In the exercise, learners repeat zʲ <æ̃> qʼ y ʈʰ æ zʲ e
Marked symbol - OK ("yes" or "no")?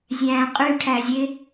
yes